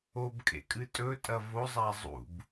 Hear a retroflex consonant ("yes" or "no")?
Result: no